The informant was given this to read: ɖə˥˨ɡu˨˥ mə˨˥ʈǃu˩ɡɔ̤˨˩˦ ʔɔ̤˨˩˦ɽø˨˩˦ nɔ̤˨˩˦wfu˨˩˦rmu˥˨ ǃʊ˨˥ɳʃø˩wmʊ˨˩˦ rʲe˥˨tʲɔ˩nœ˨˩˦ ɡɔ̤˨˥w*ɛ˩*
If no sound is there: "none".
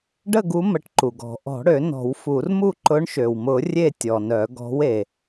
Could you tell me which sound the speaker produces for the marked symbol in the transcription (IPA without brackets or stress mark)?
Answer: e˩